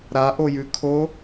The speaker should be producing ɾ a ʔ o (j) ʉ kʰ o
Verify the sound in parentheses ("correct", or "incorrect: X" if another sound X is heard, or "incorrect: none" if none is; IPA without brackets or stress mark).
correct